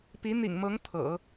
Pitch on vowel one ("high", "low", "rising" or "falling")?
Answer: rising